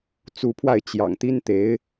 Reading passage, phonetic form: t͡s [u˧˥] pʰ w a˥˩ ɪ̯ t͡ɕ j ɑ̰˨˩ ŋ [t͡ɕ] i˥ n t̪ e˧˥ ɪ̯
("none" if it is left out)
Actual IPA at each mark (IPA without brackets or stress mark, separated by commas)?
u˧˥, t̪